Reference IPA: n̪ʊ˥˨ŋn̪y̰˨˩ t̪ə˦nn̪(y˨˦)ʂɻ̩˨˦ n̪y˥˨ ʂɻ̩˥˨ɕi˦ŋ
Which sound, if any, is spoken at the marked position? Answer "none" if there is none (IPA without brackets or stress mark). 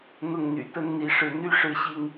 i˨˦